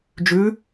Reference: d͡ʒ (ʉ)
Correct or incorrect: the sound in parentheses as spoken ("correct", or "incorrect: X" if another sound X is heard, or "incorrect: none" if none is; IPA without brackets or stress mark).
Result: correct